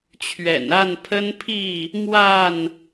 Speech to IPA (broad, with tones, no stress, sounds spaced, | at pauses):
t͡ɕʰ ɥ ɛ̰˨˩ n a˥˨ n pʰ ə˦ n pʰ i˥˨ | m w a˥˨ n